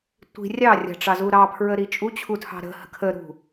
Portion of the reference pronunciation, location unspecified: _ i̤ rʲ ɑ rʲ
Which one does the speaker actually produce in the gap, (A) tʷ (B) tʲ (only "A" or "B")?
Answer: A